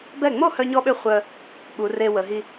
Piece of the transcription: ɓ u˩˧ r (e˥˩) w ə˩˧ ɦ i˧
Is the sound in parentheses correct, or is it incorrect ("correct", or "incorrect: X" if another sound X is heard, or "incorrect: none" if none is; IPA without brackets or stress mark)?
incorrect: e˧